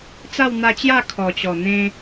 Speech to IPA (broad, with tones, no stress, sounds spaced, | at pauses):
t͡s a˥˧ w n̪ a˧ t͡ɕ j a˥˧ kʰ ɔ˨˩ t͡ɕ ɔ˨˩ n̪ ẽ˧